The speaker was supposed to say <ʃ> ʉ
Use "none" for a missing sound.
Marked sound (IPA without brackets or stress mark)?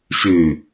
ʃ